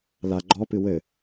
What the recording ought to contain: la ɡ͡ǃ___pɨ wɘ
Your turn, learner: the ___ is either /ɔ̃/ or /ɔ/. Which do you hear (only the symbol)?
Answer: ɔ